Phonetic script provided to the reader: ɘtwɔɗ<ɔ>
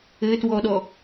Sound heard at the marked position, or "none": ɔ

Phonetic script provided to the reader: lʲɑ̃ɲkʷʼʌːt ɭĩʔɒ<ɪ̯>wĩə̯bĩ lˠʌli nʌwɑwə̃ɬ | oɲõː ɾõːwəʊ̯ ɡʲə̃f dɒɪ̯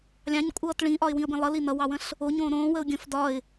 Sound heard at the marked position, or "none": ɪ̯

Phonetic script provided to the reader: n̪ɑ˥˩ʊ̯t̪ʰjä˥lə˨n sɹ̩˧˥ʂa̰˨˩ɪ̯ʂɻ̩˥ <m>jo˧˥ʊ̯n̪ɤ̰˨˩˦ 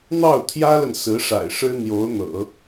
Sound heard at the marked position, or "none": n̪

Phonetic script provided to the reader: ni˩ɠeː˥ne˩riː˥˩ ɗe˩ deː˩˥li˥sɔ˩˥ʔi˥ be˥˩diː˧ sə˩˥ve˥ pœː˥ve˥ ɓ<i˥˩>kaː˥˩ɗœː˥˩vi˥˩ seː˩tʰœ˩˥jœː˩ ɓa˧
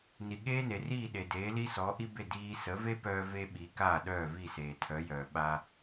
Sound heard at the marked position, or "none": i˩˥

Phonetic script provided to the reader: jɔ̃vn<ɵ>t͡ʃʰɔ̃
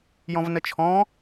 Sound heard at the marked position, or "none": ə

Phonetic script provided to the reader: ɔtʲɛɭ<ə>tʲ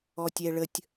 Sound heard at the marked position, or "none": ə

